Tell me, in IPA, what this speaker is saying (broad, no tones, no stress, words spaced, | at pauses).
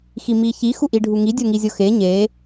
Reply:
ximiçi xuʔiɖʱuŋi dʲoŋizʲoxe ɲe